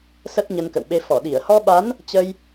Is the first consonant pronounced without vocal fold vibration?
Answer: yes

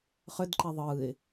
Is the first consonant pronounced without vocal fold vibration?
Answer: yes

